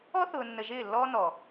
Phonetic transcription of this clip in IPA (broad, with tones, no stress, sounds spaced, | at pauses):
ɔ˦ θ ʊː˨ nː ə˨ ʒ ɪː˦˨ lː ɔː˦ n ɔ˨